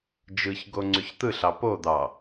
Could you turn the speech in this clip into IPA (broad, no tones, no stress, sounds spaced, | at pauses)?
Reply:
d͡ʒ ɯ ç ɡ o ŋ͡ǀ y ç t̪ ɯ ɬ ɑ p o d̪ ɑ